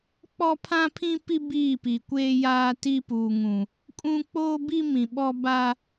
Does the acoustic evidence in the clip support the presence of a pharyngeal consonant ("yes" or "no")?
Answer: no